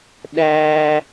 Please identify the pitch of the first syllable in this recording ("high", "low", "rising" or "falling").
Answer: high